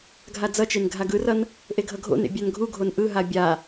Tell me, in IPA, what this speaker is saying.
ɡʱ a d͡z ʌ t͡ʃ e n ɡʱ a ɡ ɯ r ʌ n | ʔ e ɡʱ ʌ ɡʱ o̰ n ḛ bʲ a n ɡʱ u ɡʱ o n ʔ ɯ ɦ a bʲ a

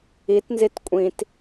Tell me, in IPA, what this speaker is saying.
i t n z i t kʷʼ ĩ t

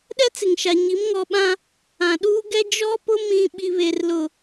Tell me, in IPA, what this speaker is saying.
ɗ ɛ˦ t͡s ɪ˨ ŋ ʃ a˨ ɲ i˨˦ m ŋ ɔ˨ ɓ ã˦ | ã˨ ɗ uː˦ ɡ ɛ˦ d͡ʒ ɔ˦ p ʊ˦ m ĩ˦ ɓ i˦ β e˦ r l ʊ˦˨

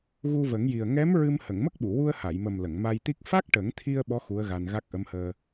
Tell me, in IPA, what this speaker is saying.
ɣ u˧ v ə˨˩˦ ŋ j i˨˩ ə̯ ŋ ɛ˧˥ m ɹ ɨ˧ m h ə˨˩˨ ŋ m ə˦˥ k̚ ɓ u˨˩˨ w u˧ ə̯ h a˨˩˨ j m ə˨˩ m l ə˨˩˨ ŋ m a˧ j t̪ i˦˥ k̚ f a˦˥ k̚ ʈ ə˨˩˦ ŋ t̪ʰ i˧ ə̯ ɓ ɔ˧˥ x u˧˥ ə̯ ɣ a˧ n ɣ a˦˥ k̚ ʔ ə˧˥ m h əː˧

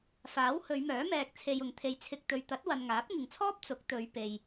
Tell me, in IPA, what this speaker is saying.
f aː˨˥ w h ɵ˨˧ ɥ m œː˨˥ m ɛː˨ k̚ t͡sʰ e˨ j ʊ˨ ŋ t̪ʰ e˧ j t͡sʰ ɪ˨ k̚ t̪ ɵ˨ ɥ t̪ ɐ˨˥ t̚ w ɐ˨ n ŋ aː˨˥ p̚ ŋ ɪ˨ ŋ t͡sʰ ɔː˥ p̚ t͡s ʊ˨˥ k̚ t̪ ɵ˨˧ ɥ p e˨ j

